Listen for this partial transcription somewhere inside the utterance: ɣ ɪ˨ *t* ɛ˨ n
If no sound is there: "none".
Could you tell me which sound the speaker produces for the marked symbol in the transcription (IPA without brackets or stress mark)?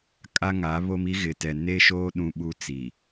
t